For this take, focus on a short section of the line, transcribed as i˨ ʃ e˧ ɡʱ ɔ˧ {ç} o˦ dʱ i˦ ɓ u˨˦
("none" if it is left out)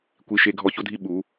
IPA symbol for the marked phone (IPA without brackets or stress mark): ç